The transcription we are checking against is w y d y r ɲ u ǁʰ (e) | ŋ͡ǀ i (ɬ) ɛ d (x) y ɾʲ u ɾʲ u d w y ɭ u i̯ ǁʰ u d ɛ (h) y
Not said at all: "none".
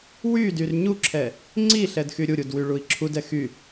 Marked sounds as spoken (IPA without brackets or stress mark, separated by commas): ɛ, ɬ, x, x